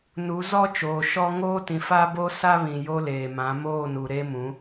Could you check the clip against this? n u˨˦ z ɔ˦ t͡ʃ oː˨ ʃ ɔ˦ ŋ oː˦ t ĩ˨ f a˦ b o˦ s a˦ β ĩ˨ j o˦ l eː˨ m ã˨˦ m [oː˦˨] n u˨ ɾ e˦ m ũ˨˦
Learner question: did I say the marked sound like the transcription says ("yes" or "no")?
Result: yes